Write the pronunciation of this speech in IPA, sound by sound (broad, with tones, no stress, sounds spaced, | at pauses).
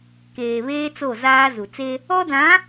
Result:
k eː˨ β eː˦ t͡s o˦˨ z aː˦ z u˨ t͡s e˦ | ɔ˦ d ã˨˦